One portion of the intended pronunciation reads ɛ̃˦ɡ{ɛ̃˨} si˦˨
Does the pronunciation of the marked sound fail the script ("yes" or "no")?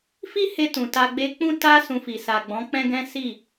yes